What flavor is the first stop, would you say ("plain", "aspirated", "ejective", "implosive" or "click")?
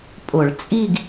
ejective